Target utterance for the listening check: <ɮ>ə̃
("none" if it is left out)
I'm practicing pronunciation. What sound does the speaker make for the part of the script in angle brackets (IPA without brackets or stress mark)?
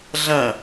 ɮ